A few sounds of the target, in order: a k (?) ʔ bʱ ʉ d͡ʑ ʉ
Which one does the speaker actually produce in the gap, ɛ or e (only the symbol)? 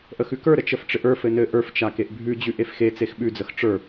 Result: e